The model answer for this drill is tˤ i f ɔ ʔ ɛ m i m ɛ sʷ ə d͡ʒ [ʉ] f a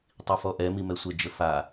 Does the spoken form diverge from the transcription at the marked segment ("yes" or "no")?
yes